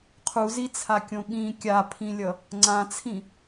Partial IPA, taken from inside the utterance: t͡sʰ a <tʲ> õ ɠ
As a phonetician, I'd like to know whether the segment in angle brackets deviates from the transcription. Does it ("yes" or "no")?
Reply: yes